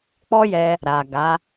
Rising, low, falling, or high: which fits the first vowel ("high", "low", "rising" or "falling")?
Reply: high